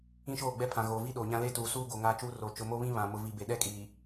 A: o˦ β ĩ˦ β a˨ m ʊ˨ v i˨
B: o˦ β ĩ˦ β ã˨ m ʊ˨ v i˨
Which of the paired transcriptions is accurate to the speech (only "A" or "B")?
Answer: B